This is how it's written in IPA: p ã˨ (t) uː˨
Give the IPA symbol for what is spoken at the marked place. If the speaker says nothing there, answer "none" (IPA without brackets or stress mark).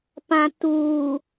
t